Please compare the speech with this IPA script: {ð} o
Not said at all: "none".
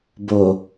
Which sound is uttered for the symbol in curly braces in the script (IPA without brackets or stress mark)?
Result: b